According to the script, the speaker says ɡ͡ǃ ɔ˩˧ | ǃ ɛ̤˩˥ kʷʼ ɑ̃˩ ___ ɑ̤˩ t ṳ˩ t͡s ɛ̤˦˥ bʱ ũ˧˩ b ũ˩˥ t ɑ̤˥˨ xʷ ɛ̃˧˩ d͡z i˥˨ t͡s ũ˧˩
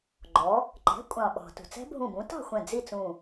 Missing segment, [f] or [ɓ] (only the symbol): ɓ